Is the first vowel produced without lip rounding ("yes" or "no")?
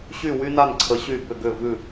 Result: no